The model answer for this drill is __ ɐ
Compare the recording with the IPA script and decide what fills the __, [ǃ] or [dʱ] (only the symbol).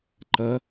ǃ